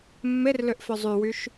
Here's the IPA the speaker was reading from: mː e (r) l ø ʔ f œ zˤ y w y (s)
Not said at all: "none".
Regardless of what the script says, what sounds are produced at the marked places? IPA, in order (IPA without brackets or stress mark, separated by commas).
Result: r, ʃ